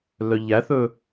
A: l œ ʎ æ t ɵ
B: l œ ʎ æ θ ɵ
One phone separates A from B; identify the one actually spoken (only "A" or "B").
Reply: B